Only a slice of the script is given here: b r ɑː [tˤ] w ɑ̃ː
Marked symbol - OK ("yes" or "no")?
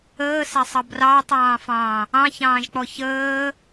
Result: yes